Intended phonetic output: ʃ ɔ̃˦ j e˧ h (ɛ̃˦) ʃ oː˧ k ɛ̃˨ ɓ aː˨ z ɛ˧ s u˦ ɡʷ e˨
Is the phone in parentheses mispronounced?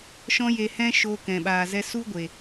no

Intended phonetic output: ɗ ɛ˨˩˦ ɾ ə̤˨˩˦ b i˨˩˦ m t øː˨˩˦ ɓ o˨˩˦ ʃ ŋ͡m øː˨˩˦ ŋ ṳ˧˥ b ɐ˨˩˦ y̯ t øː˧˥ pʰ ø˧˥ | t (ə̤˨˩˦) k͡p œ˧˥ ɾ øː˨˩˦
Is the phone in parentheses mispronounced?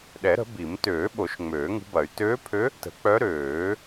no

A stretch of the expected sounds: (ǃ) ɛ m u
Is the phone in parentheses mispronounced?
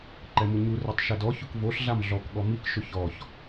no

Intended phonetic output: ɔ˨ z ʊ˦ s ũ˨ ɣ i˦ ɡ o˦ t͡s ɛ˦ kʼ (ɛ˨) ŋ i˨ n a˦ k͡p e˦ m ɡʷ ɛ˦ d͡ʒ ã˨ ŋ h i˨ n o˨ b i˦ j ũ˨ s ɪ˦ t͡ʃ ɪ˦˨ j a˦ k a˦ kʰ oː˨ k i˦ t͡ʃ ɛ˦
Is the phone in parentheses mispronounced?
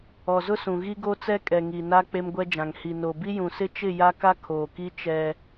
no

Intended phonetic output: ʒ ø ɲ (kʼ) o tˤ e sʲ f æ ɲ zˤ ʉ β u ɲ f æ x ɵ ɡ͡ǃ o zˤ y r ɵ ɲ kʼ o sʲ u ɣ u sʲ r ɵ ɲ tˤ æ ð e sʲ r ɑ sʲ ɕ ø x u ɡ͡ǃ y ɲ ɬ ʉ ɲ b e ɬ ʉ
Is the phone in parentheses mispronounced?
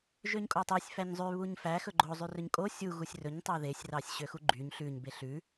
no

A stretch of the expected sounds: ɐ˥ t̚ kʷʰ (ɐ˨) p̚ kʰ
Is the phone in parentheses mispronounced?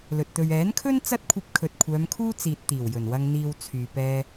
yes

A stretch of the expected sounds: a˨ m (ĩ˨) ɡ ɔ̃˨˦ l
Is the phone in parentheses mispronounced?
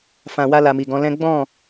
yes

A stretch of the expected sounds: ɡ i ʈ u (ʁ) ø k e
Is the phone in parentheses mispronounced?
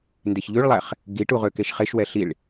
no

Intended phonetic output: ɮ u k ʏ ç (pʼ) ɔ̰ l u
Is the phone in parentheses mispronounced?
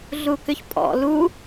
no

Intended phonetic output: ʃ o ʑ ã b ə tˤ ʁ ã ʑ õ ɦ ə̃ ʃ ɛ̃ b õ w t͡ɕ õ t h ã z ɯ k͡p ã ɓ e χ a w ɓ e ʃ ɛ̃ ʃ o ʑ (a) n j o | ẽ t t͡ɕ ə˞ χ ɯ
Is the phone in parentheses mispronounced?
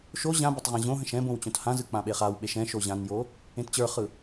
yes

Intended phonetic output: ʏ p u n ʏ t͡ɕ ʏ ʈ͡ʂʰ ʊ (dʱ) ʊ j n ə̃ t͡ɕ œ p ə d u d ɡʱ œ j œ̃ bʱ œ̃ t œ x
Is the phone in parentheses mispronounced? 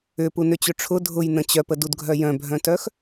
no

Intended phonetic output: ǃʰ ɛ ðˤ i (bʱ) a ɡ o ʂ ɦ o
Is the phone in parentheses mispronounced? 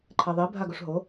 no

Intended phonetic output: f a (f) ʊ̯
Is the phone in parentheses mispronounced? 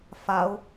yes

